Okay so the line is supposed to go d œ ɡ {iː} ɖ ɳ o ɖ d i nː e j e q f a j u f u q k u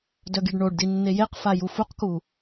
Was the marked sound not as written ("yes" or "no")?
yes